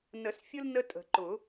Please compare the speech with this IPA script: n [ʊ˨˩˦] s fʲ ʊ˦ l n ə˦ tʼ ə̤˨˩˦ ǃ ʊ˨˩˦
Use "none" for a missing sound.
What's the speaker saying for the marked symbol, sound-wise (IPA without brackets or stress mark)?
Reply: ə˨˩˦